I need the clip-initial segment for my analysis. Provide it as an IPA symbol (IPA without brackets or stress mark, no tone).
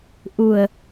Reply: ʔ